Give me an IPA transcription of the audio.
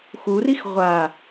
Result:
x u r i x ʁʷ a

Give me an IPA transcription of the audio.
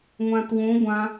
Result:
ŋʷ ã t w õ ɡʷ ã

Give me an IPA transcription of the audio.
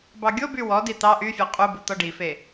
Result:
b ɑ ɡʲ o b y w ɔ d i t̪ ɑ ʔ y fʲ ɔ qʼ u b u t̪ ɔ ɖ i f e

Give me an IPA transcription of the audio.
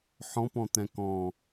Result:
ħ ɔ̃ p ɔ̃ t̪ ɛ̃ k ɔ̃

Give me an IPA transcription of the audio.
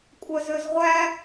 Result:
kʷʼ œ z ø z ʁʷ æ

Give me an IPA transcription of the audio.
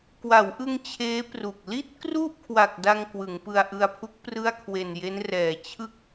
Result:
k w a˩˦ w ʔ ɯ˧ ŋ t͡ɕʰ eː˦˥ p r u˨˩ k̚ l i˥˩ t̚ k r u˥˩ ʔ kʰ w a˨˩ k̚ d a˧ ŋ k w ɯ˩˦ ŋ p ɯ˧ a̯ ʔ ɯ˧ a̯ pʰ u˦˥ k̚ p r ɯ˥˩ a̯ kʰ w e˨˩ n j e˦˥ n r ɛː˨˩ t͡ɕʰ ɯ˥˩ k̚

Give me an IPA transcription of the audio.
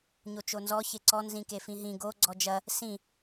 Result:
ɲ o t͡ʃ o n z ɔ ç e ǀ ɔ n z ĩ k e f ĩ ɦ ĩ ɡ o ɡ͡ǀ ɔ d͡ʒ ɐ | s ĩ

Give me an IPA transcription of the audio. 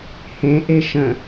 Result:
h ẽ ʔ e ʃ ə̃

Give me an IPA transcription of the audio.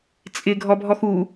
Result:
t͡sʼ ɪ ɡʱ ɔ bʱ ɔ x u

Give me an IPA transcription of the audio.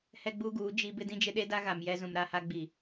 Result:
h ɛ˦ ɡ͡b uː˦ ɡ uː˨˦ d͡ʒ i˦ b ɪ˦ d ĩ˦ d͡ʒ ɪ˦ ɗ e˦ d a˦ ɣ a˨ m j ɛ˦ z ũ˨ m ɾ a˦ h a˦ ɡ͡b i˨

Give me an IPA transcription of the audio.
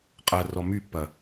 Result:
qʼ ɐ r ɔ m y pː ɐ

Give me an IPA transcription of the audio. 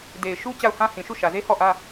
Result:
d e˨ ɪ̯ ʃ u˦ t͡ɕ a˦˨ ʊ̯ h ã˦ h ĩ˨ ʃ u˦˨ ʃ ä˨ z e˦ h ɔ˦˨ ʔ ä˦

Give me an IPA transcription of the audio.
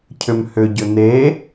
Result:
cʰ ʏ m h ʏ ɟ ʏ n̪ e

